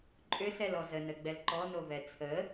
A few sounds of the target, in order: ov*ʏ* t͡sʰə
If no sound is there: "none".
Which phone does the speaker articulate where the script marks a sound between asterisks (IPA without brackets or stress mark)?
ɛ